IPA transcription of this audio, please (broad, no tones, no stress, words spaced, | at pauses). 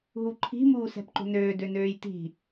ɦuǃʰi̤ muːsɛ̤pǃo̤nøː dønøːjti̤